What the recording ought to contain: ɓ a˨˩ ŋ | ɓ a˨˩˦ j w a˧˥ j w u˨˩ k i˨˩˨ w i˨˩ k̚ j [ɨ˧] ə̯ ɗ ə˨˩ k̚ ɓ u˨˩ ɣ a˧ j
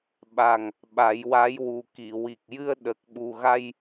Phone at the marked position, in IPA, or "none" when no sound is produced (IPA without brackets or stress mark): ɨ˧